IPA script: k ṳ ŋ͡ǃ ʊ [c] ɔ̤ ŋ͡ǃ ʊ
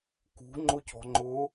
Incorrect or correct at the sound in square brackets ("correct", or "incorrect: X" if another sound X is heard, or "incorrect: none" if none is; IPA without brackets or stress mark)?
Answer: correct